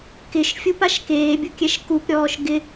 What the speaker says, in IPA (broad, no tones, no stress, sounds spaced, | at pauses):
k ɪ ʃ fʲ u p a ʃ k eː bʲ ʊ kʲ ɛ ʃ k u p ɾʲ ɔː ʃ ɡ ɪ